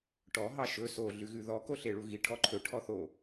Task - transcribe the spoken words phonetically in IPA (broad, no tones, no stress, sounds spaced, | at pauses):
ʈ ɔ ɦ ɑ ʃ ɵ s o ɮ ʉ ɣ ʉ ð ɔ k o ɬ e ɭ u ɣ i ʈʰ ɔ ǃʰ ɵ ʈʰ ɔ θ o